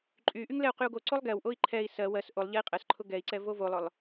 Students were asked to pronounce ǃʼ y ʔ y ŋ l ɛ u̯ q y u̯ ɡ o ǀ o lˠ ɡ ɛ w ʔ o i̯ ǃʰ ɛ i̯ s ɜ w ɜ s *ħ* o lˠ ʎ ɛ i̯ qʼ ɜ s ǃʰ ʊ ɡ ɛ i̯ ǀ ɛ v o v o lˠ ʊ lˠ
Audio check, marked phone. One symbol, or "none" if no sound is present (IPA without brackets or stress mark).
ʔ